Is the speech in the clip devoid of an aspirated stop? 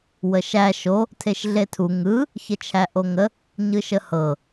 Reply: no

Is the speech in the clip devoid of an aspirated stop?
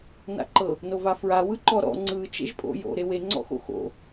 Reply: yes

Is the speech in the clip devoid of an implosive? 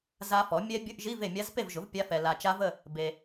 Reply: yes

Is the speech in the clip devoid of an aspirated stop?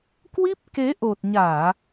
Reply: yes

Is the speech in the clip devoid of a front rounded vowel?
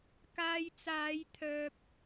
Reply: no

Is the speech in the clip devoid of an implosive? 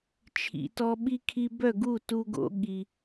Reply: no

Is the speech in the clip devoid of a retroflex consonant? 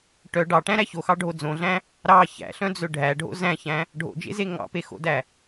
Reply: no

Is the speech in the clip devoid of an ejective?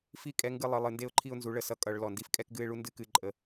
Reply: no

